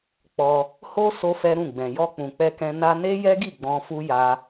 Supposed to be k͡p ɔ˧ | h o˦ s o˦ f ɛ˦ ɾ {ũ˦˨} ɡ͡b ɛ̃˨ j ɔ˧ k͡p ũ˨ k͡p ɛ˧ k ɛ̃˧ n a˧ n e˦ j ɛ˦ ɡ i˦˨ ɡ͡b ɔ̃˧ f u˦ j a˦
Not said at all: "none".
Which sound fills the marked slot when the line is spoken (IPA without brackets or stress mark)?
ũ˦˨